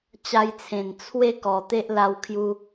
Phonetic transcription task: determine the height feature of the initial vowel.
low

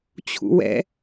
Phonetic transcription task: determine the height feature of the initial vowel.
high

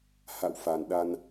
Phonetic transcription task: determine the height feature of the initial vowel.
low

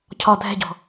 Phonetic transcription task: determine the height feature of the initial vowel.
low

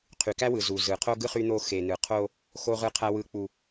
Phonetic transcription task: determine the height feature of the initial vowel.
high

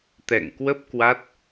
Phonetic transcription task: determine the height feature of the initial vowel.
mid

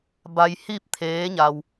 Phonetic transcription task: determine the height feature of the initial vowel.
low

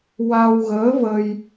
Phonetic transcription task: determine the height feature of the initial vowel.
low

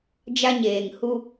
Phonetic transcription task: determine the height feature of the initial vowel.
low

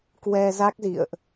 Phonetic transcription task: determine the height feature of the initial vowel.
mid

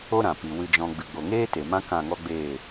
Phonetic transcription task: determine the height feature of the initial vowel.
mid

